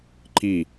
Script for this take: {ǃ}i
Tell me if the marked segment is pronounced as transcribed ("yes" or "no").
yes